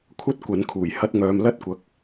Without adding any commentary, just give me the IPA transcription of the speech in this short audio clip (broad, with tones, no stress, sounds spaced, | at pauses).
kʷʰ ɐ˥ t̚ kʷ ɐ˨˥ n kʰ uː˨˩ j h ɐ˧ t̚ ŋ œː˨ m l ɐ˥ t̚ kʷ ɐ˨˥ k̚